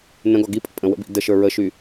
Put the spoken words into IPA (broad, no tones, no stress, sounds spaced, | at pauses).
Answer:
n ə̃ ɡ ɔ ɡ i pʼ ə̰ pʼ ə̃ w ə̰ b ḭ d ə ʃ ə˞ ɹ ə ʃ y